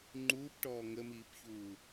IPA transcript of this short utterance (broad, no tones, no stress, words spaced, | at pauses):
ŋ͡ǃuːpʈɔː ŋəmiːpçuː